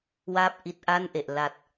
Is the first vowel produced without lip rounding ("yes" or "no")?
yes